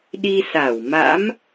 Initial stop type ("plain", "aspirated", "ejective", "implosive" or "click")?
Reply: implosive